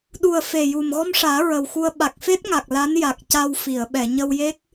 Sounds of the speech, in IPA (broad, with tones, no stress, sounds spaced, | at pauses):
ɗ u˨˩ ə̯ f e˨˩ j u˨˩ m ɣ ɔ˧ m ʂ aː˨˩˦ ɹ ə˨˩ w x u˧ ə̯ ɓ a˨˩ k̚ f e˦˥ t̚ ŋ a˨˩ k̚ l a˧˥ n j a˨˩ k̚ c a˧ w f i˨˩˨ ə̯ ɓ ɛ˨˩˨ ɲ ə˧ w j e˦˥ k̚